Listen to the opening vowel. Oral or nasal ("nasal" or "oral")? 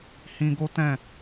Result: nasal